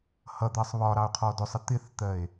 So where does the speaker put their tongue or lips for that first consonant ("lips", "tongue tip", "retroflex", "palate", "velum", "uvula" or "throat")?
throat